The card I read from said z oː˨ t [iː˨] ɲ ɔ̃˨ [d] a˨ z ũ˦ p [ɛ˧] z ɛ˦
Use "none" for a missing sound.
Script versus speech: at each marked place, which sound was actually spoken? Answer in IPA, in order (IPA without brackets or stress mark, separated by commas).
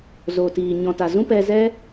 iː˨, t, ɛ˧